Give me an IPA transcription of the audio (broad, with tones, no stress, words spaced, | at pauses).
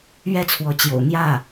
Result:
ɥɛ˥˩t͡sʰwɔ˧˥t͡ɕjo̰˨˩ʊ̯ n̪jä˥˩